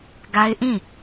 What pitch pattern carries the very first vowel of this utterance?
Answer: high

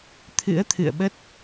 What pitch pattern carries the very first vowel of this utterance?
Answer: rising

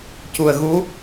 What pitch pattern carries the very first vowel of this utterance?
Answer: low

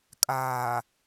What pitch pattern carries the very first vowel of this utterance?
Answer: low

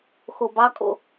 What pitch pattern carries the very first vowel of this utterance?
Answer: low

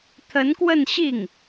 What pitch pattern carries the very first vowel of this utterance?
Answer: rising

